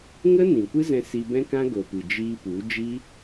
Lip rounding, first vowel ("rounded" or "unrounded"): unrounded